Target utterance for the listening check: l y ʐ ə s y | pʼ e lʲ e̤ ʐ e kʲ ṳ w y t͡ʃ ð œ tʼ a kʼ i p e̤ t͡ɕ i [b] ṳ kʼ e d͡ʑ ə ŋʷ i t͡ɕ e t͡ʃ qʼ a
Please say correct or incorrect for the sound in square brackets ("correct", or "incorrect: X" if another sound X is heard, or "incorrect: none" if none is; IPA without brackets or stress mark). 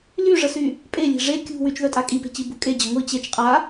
correct